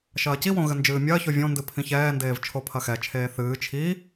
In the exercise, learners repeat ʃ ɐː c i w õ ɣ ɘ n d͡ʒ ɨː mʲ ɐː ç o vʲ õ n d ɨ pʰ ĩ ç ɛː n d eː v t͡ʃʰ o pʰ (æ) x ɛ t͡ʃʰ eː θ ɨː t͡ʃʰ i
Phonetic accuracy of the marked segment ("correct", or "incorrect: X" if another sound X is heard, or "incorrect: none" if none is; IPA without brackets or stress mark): incorrect: ɐ